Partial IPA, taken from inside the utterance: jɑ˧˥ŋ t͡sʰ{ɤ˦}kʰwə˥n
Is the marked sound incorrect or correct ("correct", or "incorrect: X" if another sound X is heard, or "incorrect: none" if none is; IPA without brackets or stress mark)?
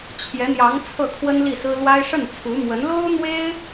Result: incorrect: ɤ˥˩